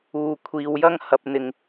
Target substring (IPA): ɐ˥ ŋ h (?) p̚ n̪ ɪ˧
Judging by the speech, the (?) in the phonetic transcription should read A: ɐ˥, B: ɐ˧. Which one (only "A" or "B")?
B